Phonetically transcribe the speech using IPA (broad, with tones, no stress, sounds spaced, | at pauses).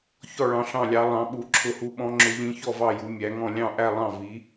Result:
ç ɔ˥˧ ɭ ɑ̃˧˥ ɬ ɑ̃˥˧ lʲ ɑ˧˥ lˠ ɑ̃˧˥ ɓ u˧˥ ǁʰ ʊ˧˥ h u˧˥ ɓ ɔ̃˧˥ ŋ͡ǁ ʊ˧˥ ʎ ĩ˧˥ ç ɔ˥˧ v ɑ˥˧ j u˧˥ mʲ æ˧˥ ŋ ɔ̃˥˧ lʲ ɑ̃˥˧ ʔ æ˥˧ lˠ ɑ̃˥˧ v i˧˥